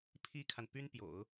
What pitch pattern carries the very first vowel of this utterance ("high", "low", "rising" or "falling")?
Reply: high